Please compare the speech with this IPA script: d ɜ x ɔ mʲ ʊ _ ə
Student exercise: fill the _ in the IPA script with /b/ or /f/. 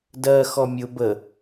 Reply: b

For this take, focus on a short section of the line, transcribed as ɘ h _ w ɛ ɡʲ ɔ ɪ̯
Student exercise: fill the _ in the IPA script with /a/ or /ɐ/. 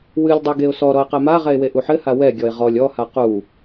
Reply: a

